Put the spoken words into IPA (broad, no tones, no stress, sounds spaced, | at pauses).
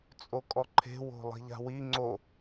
t͡sʼ o kʼ ɔ ǃʰ e̤ w o̤ lˠ i̤ ʎ a̤ w i ŋ͡ǀ o